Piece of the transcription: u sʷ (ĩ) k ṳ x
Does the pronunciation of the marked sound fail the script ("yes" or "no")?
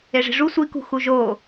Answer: yes